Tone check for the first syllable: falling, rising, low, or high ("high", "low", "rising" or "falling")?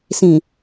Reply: low